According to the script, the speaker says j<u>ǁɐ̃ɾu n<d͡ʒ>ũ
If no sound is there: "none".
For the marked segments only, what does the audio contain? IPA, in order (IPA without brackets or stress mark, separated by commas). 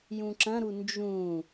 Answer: ũ, d͡ʒ